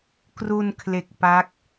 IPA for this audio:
k r u˧ n kʰ l e˨˩ k̚ p a˦˥ k̚

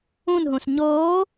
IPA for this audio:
ũ n ɦ ũ s ɲ oː

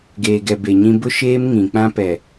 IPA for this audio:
ɡ eː˨ ɡ ɛ˨ b e˨ ɲ ĩ˦ b ʊ˦ ʃ eː˦ m ŋ ĩ˨ k͡p ã˦ p ɛ˨

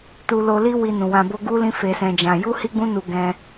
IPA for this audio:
t u˧ l o˧ l i˦ w i˧ n ũ˨ w ã˧ b o˦ ɡ u˦ l ĩ˦ f e˧ s ɛ̃˧ d͡ʒ ã˧ j u˦ h i˦ ɡ͡b ũ˦ n u˧ ɡ ɛ̃˦

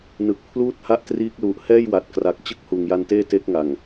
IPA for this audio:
n ɯ˨˩ k̚ pʰ l uː˥˩ t̚ h a˥˩ ʔ t r iː˦˥ k̚ l u˨˩ ʔ h ɛː˥˩ j w a˨˩ t̚ k r a˨˩ k̚ t͡ɕ ɯ˥˩ k̚ h uː˨˩ ŋ j a˧ n t eː˥˩ t e˦˥ k̚ ŋ a˨˩ ŋ

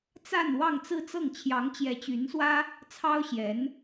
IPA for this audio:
t͡s a˥˧ n w ɑ˥˧ ŋ t͡s ɹ̩˥˧ t͡s ɤ˥˩ ŋ t͡ɕʰ j ɑ˧˥ ŋ t͡ɕ j ɛ˧˥ t͡ɕ y˧˥ n s w ä˥ | t͡sʰ ɑ˥ ʊ̯ ɕ j ɛ˧˥ n

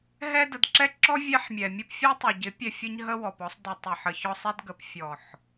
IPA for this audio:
ɦ ɛ˧ d ə˨ d ǁ ɛ˦ ǁ ɔ˦ vʲ ɛ˦ ħ mʲ ɛ˨ mʲ ɔ˦ p fʲ ɛ˦ tˤ ɪ˨ ɟ ɪ˨˦ pʲ ɛ˧ fʲ ə˦ ɲ ɦ ə˦ w ɔ˨ p ɔ˦ sˤ d ɪ˧ tˤ ɪ˧ ħ ə˧ ç ɔ˦ sˤ ɛ˦ d ɡ ə˨ p fʲ ɔ˨ ħ

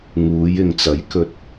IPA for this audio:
ŋ uː˨˧ j ɪ˨ ŋ t͡s ɐ˨˥ j k ɵ˨ t̚

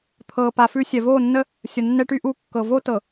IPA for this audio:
t̪ʰ ɤ˨ p a˨ f ʉ˦ sʲ ɛ˨ v o˦˨ nː ə˦ | sʲ ə˨ nː ɛ˦ ʈ y˦ ʔ u˦˨ kː ɤ˨ v o˦ t ɤ˨

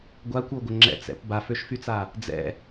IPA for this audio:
ɡʷ a kʷ o ɡʷ ə ŋ͡ǁ ɛ̰ t͡s ɛ̰ p b a f ø ʃ f y t͡s a | d͡z ɛ̰

